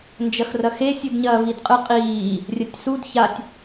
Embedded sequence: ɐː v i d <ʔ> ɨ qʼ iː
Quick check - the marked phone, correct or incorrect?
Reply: incorrect